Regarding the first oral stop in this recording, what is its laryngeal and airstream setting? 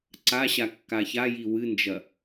click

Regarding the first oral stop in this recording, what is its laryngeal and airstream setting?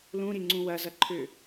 click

